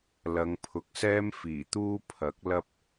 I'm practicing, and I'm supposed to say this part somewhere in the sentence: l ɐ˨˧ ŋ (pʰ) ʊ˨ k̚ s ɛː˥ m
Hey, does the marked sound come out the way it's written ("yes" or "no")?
yes